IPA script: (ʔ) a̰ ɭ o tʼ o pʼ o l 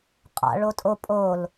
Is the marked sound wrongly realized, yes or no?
yes